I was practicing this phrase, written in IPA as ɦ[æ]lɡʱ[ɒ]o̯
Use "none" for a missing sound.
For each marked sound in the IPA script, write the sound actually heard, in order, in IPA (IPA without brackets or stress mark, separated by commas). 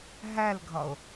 æ, ɒ